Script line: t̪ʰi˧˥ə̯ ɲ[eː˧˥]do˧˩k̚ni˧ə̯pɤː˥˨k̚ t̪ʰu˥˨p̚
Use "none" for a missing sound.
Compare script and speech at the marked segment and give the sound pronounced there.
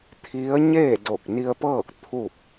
eː˥˨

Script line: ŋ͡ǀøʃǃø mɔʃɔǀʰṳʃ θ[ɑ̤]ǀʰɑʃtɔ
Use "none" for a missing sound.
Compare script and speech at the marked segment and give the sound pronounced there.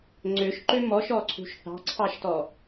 ɑ̤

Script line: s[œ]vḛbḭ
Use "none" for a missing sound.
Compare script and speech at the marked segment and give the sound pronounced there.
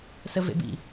ə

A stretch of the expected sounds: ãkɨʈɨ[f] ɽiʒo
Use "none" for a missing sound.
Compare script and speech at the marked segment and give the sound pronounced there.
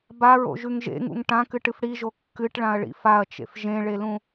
f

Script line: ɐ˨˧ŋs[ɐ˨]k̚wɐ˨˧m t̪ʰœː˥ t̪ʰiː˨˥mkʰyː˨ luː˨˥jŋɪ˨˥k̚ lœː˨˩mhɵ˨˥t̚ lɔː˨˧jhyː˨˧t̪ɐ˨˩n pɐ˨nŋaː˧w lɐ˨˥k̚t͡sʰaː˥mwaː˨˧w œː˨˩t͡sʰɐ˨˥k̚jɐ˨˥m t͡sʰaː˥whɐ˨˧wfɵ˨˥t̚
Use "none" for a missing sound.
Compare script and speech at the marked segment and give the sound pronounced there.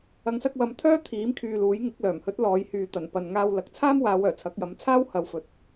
ɐ˧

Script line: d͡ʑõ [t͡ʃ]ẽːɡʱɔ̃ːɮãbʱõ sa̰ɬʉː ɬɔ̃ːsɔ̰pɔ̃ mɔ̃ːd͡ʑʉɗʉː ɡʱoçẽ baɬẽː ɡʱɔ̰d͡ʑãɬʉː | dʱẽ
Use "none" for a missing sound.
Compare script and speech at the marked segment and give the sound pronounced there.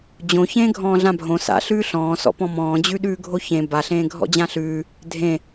ç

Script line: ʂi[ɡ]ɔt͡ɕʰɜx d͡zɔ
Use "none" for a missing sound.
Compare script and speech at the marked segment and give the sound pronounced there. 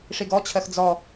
ɡ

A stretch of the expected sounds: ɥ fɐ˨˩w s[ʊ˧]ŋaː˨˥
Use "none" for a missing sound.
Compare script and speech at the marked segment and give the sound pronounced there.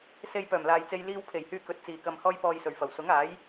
ʊ˨˥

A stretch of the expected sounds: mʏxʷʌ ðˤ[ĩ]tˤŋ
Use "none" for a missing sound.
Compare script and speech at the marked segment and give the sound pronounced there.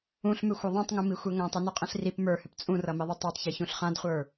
ĩ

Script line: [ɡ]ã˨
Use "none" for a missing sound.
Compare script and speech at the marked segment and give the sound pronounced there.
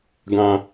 ɡ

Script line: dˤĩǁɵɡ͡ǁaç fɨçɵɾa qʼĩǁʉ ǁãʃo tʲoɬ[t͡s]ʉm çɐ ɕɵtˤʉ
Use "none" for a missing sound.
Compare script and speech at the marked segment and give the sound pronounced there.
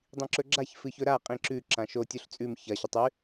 t͡sʼ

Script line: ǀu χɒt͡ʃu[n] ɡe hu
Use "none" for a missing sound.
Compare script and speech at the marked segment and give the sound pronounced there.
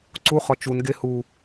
n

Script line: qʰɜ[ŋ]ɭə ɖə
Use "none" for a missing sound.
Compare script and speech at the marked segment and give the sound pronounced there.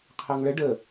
ŋ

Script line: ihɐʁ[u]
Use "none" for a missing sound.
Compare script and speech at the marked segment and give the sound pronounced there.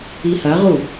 u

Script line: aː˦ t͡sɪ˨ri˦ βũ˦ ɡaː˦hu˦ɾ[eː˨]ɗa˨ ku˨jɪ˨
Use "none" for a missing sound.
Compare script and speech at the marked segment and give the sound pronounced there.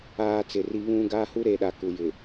eː˨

